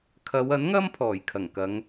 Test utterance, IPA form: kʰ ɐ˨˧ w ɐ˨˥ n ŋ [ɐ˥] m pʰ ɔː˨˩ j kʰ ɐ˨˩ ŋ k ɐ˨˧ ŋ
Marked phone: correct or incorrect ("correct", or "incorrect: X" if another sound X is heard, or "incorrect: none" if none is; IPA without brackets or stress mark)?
correct